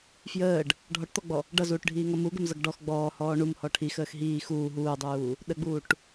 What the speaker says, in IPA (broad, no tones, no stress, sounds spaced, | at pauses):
f j əː ɖ | ɖʱ ɔ ʈ t̪ ɔ ɡ͡b ɔ | ɖ ʌ z uː ʈ ɖʱ iː ŋ ʌ m u ɡ ə m z ʌ ɡ ɖ ɔ x ɡ͡b ɔː h ɔː ɳ u m h ɔ ʈʰ i x əː x ɦ iː x uː ɦ uː dˤ uː | ɗ ə ɡ͡b uː ʈ